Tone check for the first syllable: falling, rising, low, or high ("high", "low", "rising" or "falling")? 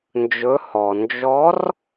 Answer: rising